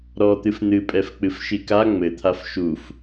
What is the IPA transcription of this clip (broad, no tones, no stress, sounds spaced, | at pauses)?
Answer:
ɾ ɔ t̪ ɨ f n̪ ɨ pʼ ɛ f k͡p ɨ f ʃ i k a ŋ͡m ɘ t̪ʰ a f ʃ u f